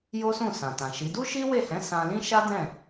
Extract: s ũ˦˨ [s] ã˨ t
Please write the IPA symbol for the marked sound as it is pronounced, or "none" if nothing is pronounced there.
s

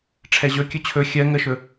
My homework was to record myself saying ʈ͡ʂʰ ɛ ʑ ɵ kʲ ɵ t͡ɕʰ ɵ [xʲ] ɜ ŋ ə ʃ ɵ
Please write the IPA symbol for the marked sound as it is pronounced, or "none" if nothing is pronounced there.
xʲ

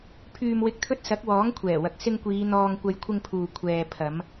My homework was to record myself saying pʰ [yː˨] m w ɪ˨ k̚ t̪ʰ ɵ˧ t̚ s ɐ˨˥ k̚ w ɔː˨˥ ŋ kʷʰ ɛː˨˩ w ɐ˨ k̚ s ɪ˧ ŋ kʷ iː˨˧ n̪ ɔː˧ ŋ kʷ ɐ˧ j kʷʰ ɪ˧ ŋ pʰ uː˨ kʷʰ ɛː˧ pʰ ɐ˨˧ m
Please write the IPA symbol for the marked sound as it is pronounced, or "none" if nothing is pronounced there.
yː˨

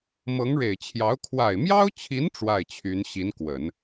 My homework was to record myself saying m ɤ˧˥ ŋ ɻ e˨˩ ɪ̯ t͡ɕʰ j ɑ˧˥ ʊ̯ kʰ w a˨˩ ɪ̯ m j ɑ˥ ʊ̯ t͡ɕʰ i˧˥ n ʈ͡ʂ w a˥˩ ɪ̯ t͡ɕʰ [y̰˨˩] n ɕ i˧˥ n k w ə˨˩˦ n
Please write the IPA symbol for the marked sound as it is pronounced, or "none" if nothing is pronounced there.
y˧˥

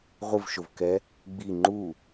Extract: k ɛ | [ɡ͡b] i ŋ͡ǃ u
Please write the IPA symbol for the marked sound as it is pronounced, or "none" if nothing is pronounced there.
ɡ͡b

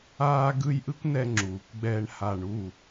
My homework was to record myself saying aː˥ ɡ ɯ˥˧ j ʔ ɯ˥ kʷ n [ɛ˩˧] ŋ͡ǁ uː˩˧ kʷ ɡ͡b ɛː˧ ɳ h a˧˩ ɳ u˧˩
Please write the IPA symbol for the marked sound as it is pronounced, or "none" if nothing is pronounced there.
ɛ˧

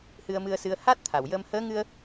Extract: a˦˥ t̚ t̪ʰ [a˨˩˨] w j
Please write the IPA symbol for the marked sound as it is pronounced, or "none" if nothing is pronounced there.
a˨˩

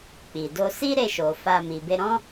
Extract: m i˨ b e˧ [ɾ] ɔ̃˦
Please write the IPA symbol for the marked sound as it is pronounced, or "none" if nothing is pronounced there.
ɾ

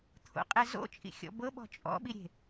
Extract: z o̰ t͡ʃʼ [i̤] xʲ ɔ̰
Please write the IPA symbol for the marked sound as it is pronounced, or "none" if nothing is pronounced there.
ḭ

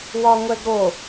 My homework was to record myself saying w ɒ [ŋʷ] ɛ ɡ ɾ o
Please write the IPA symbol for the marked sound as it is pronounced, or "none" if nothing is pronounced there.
ŋʷ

